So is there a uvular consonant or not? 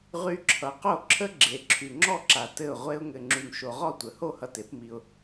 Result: yes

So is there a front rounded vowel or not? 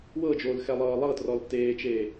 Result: no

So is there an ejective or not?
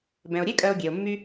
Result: yes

